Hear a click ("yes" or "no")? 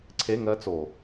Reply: yes